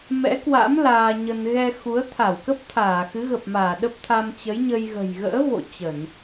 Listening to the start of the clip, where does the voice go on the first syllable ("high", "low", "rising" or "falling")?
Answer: rising